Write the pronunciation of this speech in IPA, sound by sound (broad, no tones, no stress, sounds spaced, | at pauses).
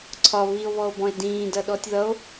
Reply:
ǀʰ ɒ β i o̯ β ɔ o̯ b ɔ̃ e̯ d ĩː d ʌ ɗ ɔ tʲ ð ʌ o̯